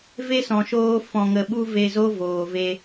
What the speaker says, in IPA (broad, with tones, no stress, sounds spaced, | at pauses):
v e˦ s ɔ̃˨ ʃ oː˧ f ɔ̃˨ ŋ ə˨ ɓ u˧ v e˧ z o˦ v oː˨ v e˧